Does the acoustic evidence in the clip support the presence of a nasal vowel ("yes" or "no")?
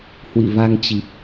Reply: no